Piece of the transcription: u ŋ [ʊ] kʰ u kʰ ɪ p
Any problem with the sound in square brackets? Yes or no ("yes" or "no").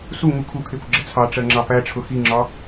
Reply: yes